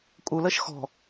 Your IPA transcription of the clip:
kʼ u l əː ʃ x ɔ̤

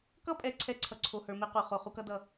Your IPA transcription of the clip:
k ʌ˦ pʼ ɛ˨ ǀʰ ɛ˦ ǀʰ ʌ˨ ǀʰ o˨ h ə˞˨ m e˦ q u˨ χ o˨ χ u˦ k ʌ˦ d ʌ˦˨

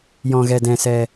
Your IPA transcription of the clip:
j ɔ̃˧ ɣ ɛ˧ d ɛ̃˧ s ɛ˧

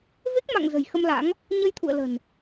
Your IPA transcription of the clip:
v e˦˥ k̚ m a̰˧˨ ŋ z ə̤˨˩ j x ə˧ m l a̰˧˥ ŋ | ɲ ə˧ j t̪ʰ ṵ˧˨ ə̯ l ə̤˨˩ n

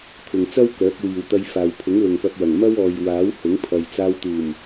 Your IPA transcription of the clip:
t̪ʰ ʊ˨ ŋ t͡s ɐ˥ w k œː˨˥ k̚ w iː˨ w t̪ ɐ˧ j f aː˨ w pʰ ʊ˨˥ ŋ l ʊ˨ ŋ p ɐ˧ p̚ w ɐ˨˩ ŋ m ɐ˥ w ɔː˨ j w aː˨˥ w h ʊ˨˥ ŋ pʰ ɐ˨ j t͡s aː˧ w t̪ uː˨˩ m

